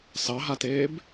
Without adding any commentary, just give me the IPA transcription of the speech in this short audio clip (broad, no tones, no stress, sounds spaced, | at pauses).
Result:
s ɑ ɦ a t eː b